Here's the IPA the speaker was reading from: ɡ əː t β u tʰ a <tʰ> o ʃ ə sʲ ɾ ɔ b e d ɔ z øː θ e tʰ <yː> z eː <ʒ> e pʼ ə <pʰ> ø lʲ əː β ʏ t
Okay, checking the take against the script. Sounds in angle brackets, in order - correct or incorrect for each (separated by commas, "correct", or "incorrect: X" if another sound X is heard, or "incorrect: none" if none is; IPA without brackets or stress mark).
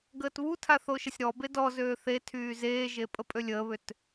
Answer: incorrect: θ, correct, correct, incorrect: pʼ